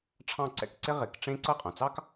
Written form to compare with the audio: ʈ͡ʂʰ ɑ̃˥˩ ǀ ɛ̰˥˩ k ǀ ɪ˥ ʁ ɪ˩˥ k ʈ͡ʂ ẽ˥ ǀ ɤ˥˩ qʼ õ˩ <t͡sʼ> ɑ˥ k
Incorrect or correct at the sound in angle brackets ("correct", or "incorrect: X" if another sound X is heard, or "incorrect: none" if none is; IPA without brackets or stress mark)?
incorrect: t͡s